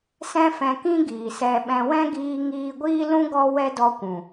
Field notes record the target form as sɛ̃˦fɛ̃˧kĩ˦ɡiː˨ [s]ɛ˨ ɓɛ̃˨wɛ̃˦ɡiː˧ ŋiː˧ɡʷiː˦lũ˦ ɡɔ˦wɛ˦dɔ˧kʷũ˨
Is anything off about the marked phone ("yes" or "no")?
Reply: no